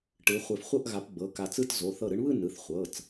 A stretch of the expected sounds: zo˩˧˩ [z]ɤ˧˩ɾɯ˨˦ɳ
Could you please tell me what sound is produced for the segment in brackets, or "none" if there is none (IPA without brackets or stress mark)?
θ